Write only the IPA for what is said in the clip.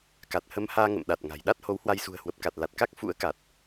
ka˨˩t̚hə˧mhaː˧ ŋə̰˧˨mɗa˨˩t̚ŋa̤˨˩j ɗa˦˥t̚ho˨˦whwa˧jsṳ˨˩ə̯ hwə˨˩p̚ka˨˩t̚la˨˩t̚ ka˦˥k̚ fṵ˧˥ə̯ka˨˩t̚

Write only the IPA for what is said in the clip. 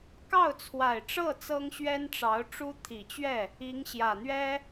kɑ˥˩ʊ̯t͡sʰwa˨˩ɪ̯ʈ͡ʂɤ˥˩ t͡sɤ˥ŋɕɥɛ˥nʈ͡ʂɑ˧˥ʊ̯ʈ͡ʂu˥ t̪ʰi˨˩t͡ɕɥɛ˥˩ | i˧˥ŋɕjä˨˩n̪ɥɛ˥

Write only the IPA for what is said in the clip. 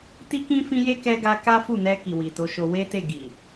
ti˦kĩ˦ fĩ˦je˦ kɛ˧ɡa˧ ka˦fu˦˨nɛ˧ ki˨wi˨to˨˦ʃo˧ we˦te˦˨ ɡi˨

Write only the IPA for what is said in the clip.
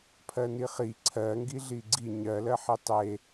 pʰɜniχi ǀʰɜŋɡi ɮiɡ͡ǀi ɲɜlɜħi tˤe

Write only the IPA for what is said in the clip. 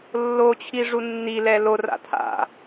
lːot͡ɕʰi ʐunːilɛ lora̰ tʰa̰

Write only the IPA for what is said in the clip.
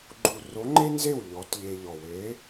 ɡ͡ǃu˨˩ ro˨˥ŋ͡ǃe˥nze˥˩w ʎɔ˨˥tʎe˧ʎɔ˨˩ we˨˥

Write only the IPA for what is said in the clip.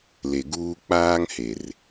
le˨ɡuː˦ k͡paː˦ŋhe˨r

